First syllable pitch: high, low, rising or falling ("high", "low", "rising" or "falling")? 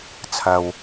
low